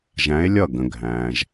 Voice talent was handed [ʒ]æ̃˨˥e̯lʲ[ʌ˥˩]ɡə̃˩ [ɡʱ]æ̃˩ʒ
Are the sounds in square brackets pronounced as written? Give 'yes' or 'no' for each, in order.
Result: yes, yes, yes

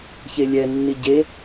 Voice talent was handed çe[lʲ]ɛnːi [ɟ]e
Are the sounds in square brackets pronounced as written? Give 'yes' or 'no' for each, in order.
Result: yes, yes

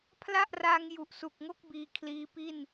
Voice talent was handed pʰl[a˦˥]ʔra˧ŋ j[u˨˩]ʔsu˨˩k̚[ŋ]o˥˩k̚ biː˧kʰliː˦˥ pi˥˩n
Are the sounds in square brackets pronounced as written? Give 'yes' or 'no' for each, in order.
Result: no, yes, yes

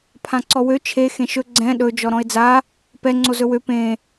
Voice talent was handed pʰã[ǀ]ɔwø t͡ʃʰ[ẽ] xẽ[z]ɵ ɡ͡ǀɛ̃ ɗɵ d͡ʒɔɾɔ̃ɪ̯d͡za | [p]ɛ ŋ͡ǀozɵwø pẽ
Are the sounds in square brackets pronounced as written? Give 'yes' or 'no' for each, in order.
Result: yes, no, no, yes

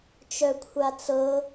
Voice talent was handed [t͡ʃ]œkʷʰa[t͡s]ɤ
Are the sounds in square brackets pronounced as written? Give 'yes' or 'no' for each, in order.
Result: yes, yes

